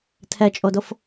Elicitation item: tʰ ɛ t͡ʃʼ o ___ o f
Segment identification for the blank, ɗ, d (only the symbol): d